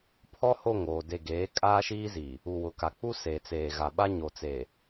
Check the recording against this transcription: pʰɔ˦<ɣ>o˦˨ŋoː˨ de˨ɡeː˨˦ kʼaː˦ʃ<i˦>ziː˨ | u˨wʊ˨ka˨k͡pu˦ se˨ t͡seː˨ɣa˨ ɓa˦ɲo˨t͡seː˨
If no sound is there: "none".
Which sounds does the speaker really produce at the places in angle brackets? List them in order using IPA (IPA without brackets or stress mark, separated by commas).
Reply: h, iː˦